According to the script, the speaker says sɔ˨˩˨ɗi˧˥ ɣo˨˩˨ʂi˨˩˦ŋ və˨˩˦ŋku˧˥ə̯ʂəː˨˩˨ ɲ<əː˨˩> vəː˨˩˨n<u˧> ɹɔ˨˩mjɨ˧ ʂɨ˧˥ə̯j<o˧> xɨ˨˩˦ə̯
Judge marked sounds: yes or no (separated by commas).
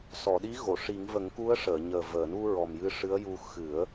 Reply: yes, yes, no